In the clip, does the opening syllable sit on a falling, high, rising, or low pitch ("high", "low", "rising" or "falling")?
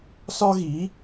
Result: high